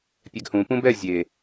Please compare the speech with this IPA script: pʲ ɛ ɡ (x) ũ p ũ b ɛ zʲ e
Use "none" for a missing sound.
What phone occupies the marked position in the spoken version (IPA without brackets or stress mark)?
h